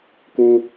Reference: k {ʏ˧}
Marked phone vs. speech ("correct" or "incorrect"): incorrect